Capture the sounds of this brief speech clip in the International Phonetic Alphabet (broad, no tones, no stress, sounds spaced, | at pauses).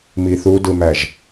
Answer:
m i θ u d ɯ m æ ʒ